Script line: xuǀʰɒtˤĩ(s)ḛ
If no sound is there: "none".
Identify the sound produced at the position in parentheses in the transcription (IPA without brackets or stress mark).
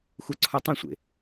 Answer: sʷ